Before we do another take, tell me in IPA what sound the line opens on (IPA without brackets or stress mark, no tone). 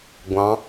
ɡʷ